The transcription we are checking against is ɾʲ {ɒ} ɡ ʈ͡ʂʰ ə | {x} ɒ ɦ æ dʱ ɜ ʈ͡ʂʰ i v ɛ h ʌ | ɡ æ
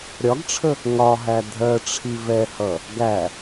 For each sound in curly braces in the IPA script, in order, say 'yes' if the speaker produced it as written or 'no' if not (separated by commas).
yes, no